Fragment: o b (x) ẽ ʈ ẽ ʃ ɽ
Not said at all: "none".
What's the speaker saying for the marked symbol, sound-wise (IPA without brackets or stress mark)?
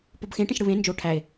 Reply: x